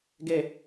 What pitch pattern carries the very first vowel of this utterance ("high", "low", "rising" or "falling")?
low